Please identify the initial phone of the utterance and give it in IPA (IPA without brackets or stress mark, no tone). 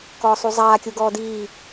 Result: k